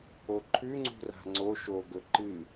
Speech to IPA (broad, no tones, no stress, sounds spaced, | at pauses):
o ǃʰ ʉ ŋ͡ǀ ṳ r a̤ ŋ͡ǀ o ʃ o ɡ ɵ ǃ ɨ